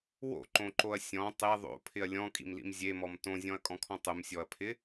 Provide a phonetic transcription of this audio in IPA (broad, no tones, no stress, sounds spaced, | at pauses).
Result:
w o̰ ǃ õ ǃ o ɐ̯ sʲ ɔ̃ tˤ e ðˤ o̰ pʰ ɪ ɐ̯ lʲ ɔ̃ kʼ ḭ m l ḭ m zʲ e m ɔ m t õ zʲ ɔ̃ ɐ̯ kʼ ɔ̃ kʰ ɔ̃ tˤ ʊ m sʲ ɔ ɐ̯ pʰ ɪ